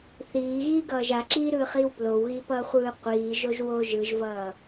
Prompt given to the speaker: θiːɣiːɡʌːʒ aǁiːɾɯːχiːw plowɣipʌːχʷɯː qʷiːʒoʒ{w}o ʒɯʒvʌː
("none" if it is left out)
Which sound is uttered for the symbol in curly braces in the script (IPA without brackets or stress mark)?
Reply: w